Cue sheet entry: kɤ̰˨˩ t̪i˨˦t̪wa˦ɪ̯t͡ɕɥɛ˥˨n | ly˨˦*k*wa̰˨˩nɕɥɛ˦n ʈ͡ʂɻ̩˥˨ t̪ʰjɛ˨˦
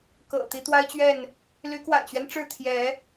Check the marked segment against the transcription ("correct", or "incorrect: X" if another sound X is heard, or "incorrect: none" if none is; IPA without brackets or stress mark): correct